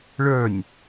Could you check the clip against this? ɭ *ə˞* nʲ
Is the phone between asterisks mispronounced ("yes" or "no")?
no